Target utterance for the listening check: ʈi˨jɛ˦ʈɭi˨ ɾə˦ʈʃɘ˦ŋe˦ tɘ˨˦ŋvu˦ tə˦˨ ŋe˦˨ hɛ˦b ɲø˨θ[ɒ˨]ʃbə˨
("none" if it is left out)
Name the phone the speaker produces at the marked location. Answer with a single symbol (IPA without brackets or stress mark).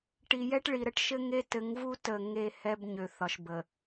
ɒ˨